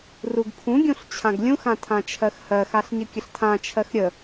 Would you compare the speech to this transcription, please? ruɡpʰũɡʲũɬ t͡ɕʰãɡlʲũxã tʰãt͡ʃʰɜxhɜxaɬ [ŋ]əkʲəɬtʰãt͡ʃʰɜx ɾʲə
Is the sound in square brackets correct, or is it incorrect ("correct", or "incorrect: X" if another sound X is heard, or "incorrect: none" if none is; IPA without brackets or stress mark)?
incorrect: ɲ